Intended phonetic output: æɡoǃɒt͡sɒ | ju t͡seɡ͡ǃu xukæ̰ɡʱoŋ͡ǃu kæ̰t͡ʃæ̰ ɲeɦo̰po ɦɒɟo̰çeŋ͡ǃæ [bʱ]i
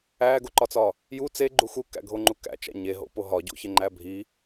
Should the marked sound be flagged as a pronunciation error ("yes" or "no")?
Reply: no